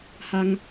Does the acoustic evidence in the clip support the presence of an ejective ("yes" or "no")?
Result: no